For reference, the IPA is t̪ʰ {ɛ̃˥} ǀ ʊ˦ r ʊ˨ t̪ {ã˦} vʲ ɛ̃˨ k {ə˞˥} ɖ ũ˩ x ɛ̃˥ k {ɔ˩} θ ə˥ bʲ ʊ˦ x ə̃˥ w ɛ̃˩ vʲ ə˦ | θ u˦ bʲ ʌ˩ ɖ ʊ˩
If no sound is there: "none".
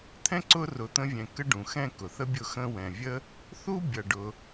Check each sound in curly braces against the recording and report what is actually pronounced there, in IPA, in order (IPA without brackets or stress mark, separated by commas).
ɛ̃˥, ə̃˦, ə˥, ʊ˩